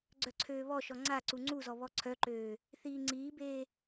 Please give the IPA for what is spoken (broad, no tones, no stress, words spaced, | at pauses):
ɡ͡ǀœǀʰøːβɔʃɔ ŋ͡ǀaǀu ŋ͡ǀuzɔ βɔǀʰœǃøː | θiːŋ͡ǀiːbeː